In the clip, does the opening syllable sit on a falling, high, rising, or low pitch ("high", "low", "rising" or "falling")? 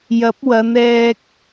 rising